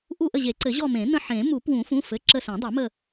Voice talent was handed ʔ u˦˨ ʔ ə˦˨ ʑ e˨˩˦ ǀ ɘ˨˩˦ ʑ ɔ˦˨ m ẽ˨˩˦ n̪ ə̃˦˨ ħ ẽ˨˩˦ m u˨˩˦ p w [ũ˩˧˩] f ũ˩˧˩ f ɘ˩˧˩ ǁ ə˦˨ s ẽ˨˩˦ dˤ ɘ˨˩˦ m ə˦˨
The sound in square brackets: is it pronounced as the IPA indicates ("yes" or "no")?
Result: no